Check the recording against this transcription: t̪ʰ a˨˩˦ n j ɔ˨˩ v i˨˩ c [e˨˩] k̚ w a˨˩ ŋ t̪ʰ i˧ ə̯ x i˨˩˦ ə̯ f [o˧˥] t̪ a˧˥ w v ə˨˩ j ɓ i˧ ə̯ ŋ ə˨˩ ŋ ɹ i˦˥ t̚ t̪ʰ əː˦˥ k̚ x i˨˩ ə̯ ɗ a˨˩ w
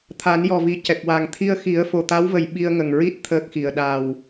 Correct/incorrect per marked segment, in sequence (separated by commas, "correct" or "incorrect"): incorrect, incorrect